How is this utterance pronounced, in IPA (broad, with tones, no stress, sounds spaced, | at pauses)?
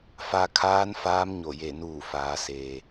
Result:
f a˧ kʰ aː˧˥ n f aː˧˥ m ɲ o˧˩ j e˧˩ n uː˧˩ f aː˩˧ s eː˩